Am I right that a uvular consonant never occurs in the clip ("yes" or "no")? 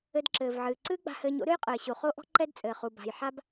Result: no